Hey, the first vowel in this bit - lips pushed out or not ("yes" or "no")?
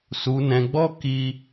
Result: yes